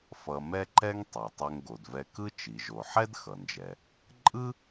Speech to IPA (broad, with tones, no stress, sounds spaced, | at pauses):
f ʌ˧ m ɛ˥ ǃ ɛ˥ ŋ tˤ e˩ tˤ ɛ˧ ŋ ɡ o˩ d v ɛ˧ k ɯ˥ t͡ʃ i˩ ʒ o˩ ħ ɛ˥ d x ʌ˩ n d͡ʒ ɛ˩ | ǃʼ ɯ˥